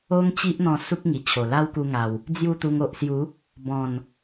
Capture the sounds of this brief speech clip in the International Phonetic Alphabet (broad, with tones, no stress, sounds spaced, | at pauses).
o˦ ŋ t͡ɕ i˦ ʔ n̪ ɔ̃˧ s u˦ k̚ ŋ i˨˩ t͡ɕʰ o˨˩ l a˦ w k u˧ ŋ a˨˩ w | d͡z j u˥˧ t̪ u˧ ŋ o˨ ʔ s j u˨˦ | b ɔ̃˨˩ n